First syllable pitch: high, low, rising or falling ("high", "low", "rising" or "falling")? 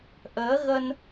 rising